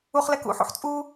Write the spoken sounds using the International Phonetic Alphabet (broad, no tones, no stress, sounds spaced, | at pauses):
u χ l ɛ k ṵ ħ ṵ ħ t͡sʼ u